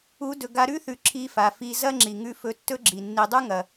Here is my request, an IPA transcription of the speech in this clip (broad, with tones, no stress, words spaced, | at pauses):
u˨˦ dɵ˨ɡa˧ɾʉ˦θʉ˨ ǁʰi˧fa˨fi˧ zɐ˦ŋ͡ǁi˨ŋʉ˧ fɵ˧tːɵ˦ ɡ͡ǁi˨ nːi˨dˤu˦ ŋɐ˨